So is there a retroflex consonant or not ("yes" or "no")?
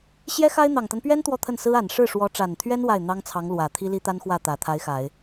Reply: yes